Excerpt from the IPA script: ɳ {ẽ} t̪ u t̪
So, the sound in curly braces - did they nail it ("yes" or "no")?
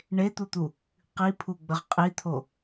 no